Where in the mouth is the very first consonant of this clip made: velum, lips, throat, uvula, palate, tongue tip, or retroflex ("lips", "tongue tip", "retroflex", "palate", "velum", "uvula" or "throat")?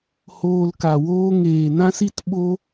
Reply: throat